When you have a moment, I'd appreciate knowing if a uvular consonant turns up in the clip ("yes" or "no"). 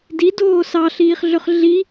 yes